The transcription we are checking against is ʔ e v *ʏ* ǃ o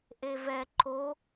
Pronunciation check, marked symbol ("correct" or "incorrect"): incorrect